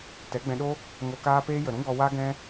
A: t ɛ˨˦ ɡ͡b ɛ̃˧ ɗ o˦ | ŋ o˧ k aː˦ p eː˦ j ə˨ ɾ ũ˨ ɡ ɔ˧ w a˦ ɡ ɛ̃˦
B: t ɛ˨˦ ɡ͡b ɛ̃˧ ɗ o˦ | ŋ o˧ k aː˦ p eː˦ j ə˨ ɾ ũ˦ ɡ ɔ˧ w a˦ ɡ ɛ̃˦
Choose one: B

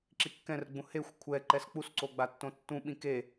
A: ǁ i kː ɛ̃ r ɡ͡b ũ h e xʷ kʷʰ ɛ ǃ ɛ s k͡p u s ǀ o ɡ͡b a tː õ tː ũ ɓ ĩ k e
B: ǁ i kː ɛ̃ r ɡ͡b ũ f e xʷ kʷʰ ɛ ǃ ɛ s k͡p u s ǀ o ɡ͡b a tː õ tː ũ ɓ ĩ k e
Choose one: A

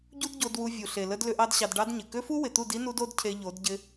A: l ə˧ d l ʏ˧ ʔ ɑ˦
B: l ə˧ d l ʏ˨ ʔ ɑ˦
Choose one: A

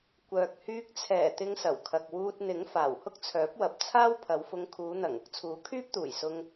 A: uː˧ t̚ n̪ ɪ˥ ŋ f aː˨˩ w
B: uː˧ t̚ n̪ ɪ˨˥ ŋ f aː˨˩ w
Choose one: B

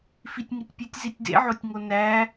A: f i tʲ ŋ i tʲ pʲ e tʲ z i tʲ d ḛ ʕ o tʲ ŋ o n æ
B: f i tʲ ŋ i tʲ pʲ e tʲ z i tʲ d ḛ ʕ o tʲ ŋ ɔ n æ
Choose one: A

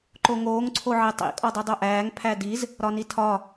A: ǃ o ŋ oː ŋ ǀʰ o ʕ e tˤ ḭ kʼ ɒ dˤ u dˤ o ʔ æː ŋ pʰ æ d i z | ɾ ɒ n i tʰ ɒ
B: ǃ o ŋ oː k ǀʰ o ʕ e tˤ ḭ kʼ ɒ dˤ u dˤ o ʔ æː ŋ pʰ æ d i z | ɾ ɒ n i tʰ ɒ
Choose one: A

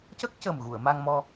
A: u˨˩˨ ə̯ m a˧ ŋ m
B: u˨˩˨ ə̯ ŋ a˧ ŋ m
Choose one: A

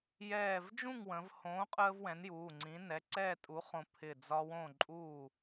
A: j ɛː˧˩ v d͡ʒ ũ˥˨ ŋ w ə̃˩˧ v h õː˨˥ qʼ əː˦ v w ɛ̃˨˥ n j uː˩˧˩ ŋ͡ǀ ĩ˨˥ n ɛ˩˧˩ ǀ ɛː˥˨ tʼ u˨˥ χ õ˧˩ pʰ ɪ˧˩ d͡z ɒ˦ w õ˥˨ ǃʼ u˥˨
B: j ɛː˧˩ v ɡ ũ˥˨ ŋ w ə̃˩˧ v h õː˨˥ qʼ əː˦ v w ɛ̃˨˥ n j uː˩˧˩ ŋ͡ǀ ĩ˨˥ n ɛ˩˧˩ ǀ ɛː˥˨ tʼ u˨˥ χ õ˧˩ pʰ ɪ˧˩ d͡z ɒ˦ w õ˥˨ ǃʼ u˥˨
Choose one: A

